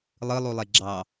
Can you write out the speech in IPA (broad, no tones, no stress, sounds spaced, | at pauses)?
lˠ ɯ lˠ u lˠ e ɡ͡ǁ ɑ